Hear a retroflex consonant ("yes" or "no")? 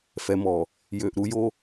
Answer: no